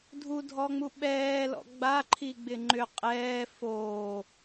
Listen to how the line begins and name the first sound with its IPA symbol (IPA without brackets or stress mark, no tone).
dʱ